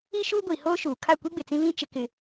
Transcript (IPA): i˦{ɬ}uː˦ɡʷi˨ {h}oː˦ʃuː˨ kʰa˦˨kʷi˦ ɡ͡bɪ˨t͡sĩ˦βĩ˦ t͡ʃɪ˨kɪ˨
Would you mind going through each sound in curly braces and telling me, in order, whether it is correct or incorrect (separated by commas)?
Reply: incorrect, correct